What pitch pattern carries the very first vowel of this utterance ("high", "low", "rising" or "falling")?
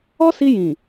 high